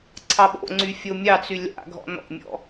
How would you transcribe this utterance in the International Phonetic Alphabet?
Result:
ǀʰ ɑ ɓ o̰ ŋ͡ǀ y fʲ o mʲ ɑ t͡s y lʲ a̰ ɡʱ ɔ̰ n ɔ̰ mʲ ɔ̰

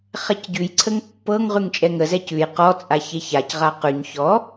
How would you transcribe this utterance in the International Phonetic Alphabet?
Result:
χ ɛ c ɟ ʉ j ǀʰ ə ŋ pː ɤ ŋ ʁ ʉ ŋ t͡ʃʼ ɛ ŋ ə z ɛ c ʉ j q ɔ t͡sʼ a ç e ç a c ʁ a q ʉ ɲ ç ɔ

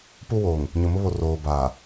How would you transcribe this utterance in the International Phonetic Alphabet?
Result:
p u˦ w oː˨ ŋ | ɲ ʊ˨ m ʊ˦ β o˨ r oː˨ b aː˨

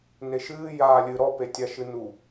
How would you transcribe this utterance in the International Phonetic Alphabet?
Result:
n e ʃ ɨː j aː lʲ ɨ ɾ ɔ p e tʲ a ʃ ɨ n u

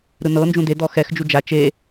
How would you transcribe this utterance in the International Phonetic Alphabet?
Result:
ɾ ɯ n ɤ n d͡ʒ ũ d e d ɔ x ɛ x d͡ʒ u d͡ʒ a t͡ʃ e

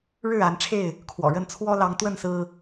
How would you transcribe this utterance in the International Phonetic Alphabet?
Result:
ɻ ɻ̩˥˨ a˨˦ n ʈ͡ʂʰ e˥˨ ɪ̯ | kʰ w ɔ̰˨˩ ɻ ə˥˨ n t͡sʰ w ɔ˦ l ɑ˨˦ ŋ t̪ w ə˥˨ n s ɹ̩˦

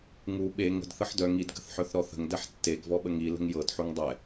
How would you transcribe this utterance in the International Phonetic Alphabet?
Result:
ŋ u ɓ e ŋ ə̤ d θ ə ħ d œ ŋ i d ɡ ə̤ θ ħ œ θ ɾ ɔ θ ə̤ ŋ d ɛ ħ tː e ɡ v ɔ ɓ ə ŋ i l ə̤ ŋ j ɤ d ħ u ŋ dˤ ɛ

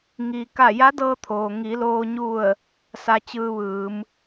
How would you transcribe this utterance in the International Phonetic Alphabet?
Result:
ŋ i˩ k a˧˩ j a˧˥ d ɤː˧ t̪ʰ oː˩ ŋ i˩˧ l oː˧ ɲ u˧˩ ə̯ | s a˧ t͡ɕ ɯː˧ ʋ ɯː˩˧ m

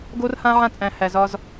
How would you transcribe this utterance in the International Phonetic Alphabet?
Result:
ɡ o˦ r h ã˦ ʕ ã˦˨ t͡sʼ æ̃˨ h æ˨ z ɒ˦ z

